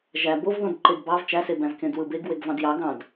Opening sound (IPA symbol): ʒ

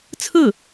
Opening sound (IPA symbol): t͡sʰ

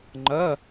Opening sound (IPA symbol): ŋ͡ǃ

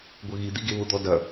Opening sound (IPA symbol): ɡʷ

